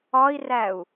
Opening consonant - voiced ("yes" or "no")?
yes